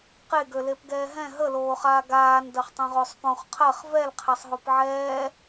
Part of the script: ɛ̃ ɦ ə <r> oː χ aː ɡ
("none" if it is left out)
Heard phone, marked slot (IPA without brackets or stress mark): l